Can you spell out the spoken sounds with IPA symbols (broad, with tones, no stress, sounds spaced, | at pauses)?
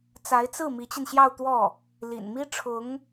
t͡s a˧˥ ɪ̯ t͡s ɹ̩˥˩ m i˧˥ t͡ɕ i˧ n ɕ j ɑ˥˧ ʊ̯ t̪ w ɔ˥˩ | l ḭ˨˩ n m i˥ ʈ͡ʂʰ ʊ˧˥ ŋ